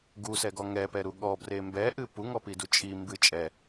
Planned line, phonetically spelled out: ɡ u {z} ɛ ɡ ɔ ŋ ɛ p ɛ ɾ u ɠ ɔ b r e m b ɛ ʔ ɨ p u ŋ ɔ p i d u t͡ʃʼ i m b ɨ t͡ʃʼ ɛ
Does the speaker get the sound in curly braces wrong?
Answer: yes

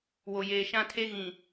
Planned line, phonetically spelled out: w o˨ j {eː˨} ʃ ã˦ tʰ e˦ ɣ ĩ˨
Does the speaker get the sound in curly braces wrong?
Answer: no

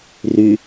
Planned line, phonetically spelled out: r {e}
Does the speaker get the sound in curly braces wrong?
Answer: yes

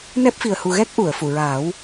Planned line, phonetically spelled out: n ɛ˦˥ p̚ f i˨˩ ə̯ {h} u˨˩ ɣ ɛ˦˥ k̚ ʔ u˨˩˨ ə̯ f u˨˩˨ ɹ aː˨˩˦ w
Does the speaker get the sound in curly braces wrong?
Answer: no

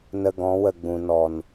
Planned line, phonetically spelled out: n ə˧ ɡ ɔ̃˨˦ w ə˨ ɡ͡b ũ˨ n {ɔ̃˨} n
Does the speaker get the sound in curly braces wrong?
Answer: yes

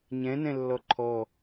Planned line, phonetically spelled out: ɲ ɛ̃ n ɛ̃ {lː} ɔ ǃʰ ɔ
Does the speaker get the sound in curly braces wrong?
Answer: no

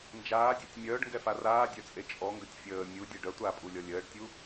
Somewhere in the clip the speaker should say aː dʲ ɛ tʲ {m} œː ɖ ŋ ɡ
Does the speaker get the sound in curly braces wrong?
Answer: yes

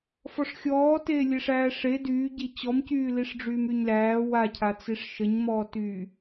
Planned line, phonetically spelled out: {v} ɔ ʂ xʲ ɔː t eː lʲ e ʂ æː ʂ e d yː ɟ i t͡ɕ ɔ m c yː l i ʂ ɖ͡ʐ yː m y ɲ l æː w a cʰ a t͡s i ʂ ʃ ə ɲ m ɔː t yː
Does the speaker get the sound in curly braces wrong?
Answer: yes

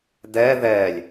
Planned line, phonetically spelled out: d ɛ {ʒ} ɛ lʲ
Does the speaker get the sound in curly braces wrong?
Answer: yes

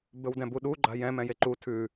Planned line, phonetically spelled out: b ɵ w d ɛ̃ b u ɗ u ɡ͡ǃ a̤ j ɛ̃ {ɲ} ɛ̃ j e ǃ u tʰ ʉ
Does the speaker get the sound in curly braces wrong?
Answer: yes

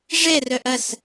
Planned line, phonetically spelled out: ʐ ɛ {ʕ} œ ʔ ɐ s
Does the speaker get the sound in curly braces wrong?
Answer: yes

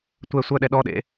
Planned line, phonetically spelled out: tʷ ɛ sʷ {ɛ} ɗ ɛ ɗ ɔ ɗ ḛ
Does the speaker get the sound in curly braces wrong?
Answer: yes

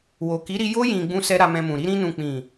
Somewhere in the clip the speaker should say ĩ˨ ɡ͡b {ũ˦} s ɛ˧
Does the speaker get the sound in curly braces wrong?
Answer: yes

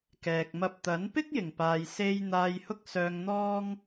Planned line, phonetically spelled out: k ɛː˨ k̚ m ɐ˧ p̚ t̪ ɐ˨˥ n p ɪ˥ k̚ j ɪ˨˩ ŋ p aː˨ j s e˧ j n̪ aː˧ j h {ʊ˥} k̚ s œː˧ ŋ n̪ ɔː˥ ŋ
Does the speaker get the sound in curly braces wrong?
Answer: no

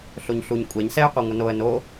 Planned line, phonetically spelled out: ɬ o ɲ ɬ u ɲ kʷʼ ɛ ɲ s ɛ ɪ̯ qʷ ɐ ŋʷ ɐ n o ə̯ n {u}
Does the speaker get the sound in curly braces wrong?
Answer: yes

